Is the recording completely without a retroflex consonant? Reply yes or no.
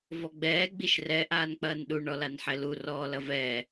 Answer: no